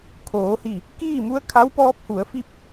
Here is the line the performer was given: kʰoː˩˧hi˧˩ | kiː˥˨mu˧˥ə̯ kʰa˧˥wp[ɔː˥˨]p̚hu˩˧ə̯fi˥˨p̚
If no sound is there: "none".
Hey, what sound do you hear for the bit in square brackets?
ɔː˧˥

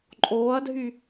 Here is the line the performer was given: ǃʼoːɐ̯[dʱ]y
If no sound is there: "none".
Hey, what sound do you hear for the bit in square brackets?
dʱ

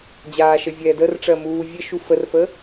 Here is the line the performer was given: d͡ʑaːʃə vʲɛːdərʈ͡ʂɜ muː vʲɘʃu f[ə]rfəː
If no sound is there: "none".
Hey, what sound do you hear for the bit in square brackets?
ə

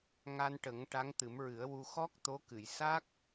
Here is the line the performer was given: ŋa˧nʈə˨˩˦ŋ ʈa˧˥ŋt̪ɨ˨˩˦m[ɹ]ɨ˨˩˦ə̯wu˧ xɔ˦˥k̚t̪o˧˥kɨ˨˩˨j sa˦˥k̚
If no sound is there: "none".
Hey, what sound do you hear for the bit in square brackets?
ɹ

